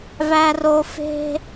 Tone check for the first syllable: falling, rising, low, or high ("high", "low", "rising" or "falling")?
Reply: high